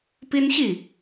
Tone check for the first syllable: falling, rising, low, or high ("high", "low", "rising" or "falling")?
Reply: high